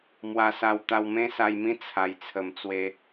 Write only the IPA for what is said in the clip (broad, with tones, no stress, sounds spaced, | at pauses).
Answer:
m w a˧ s a˧ w t̪ a˧ w m ẽ˦ s a˧ j m ĩ˦ t͡sʰ a˨˩ j t͡sʰ ə˨˩ m t͡s w e˧